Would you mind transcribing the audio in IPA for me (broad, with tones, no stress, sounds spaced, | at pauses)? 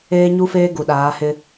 eː˦ ɲ u˦ f eː˦ ɡ u˨ ɗ aː˨˦ h ɪ˦